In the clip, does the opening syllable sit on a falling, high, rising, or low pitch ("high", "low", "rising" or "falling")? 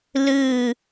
falling